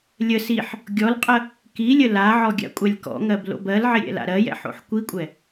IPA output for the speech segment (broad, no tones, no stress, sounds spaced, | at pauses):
lʲ ə s i ħ | ɡʲ ɔ l qʼ ə | k i lʲ ə l a ʕ ɔ ɡʲ a̰ kʷʼ a lʲ k ɔ̰ ŋ ɜ b l o̰ b ɜ l ʕ ɪ ɾʲ ɛ̰ l a̰ ɾ ɜ j ɛ̰ ħ o̰ ħ kʷ i kʷʼ ɛ